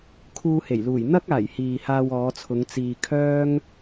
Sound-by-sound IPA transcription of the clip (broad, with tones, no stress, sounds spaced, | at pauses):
kʰ uː˧ h e˨˩ j l uː˨˩ j n̪ ɐ˥ k̚ aː˨˩ j h iː˨ h aː˧ w ɔː˨˧ t͡sʰ ʊ˨˧ ŋ t͡s iː˨ kʰ œː˥ ŋ